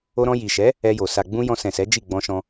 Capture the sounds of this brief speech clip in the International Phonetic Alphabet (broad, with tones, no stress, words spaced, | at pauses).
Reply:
o˧ɾɔ̃˧ ji˨ ʃɛ˨˦ | ɛ˧jo˨ sa˨ɡ͡bũ˧ jɔ̃˧ sɛ̃˨sɛ˨˦ d͡ʒi˦˨ɡ͡bɔ̃˧ʃɔ̃˧